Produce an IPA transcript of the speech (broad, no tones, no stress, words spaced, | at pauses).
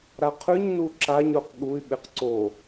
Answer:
ɾaqʰʉɲnu ǁaɲɾoq ɠuy̯ɓeq ǀo